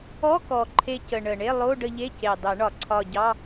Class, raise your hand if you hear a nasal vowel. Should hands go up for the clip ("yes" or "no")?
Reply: no